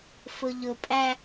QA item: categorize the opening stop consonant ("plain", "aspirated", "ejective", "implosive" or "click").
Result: ejective